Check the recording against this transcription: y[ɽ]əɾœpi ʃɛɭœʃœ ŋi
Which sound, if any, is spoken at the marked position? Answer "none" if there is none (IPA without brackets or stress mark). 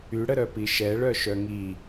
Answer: ɽ